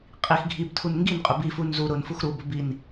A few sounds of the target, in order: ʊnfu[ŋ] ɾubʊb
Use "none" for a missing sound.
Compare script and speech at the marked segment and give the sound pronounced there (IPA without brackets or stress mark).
x